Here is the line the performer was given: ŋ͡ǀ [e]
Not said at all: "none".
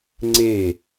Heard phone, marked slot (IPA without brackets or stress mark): e